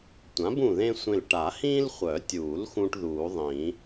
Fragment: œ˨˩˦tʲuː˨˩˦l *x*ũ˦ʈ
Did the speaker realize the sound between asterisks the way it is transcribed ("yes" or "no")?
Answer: yes